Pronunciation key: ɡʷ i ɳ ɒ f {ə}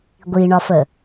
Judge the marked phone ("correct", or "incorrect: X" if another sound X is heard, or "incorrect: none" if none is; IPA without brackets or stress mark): correct